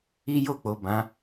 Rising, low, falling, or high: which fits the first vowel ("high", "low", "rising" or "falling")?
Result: high